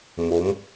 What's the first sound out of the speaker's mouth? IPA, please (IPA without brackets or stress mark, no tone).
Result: m